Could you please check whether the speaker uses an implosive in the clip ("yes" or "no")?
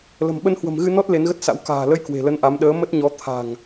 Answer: yes